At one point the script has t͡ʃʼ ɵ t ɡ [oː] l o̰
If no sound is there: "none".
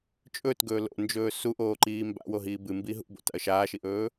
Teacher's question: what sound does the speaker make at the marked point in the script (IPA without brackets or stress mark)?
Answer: ɵː